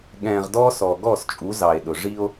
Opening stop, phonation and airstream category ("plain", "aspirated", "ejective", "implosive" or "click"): implosive